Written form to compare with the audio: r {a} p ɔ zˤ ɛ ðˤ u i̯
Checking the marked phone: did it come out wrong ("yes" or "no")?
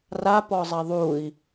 no